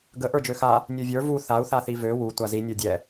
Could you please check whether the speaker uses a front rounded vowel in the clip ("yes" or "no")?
yes